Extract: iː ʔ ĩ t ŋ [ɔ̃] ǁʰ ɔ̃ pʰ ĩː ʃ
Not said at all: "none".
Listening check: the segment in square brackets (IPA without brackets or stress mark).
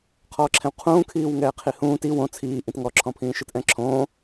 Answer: ɔ